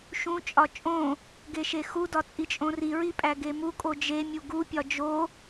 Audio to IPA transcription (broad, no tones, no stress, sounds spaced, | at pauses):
ʃ ũ t͡ʃʼ ɒ t͡ʃʼ õ | ɡ e ʃ e x u d ɒ t͡sʼ i t͡ʃʼ õ r i ɹ i pʼ æ ɡ e m u kʼ o d͡ʒ e mʲ u ɡ u pʲ ɒ d͡ʒ o